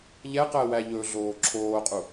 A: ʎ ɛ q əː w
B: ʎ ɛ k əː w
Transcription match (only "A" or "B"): A